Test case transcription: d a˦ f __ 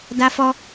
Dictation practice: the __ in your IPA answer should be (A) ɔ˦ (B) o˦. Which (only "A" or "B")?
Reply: A